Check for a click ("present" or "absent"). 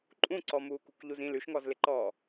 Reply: present